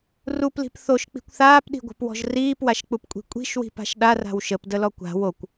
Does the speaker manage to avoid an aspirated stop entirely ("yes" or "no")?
yes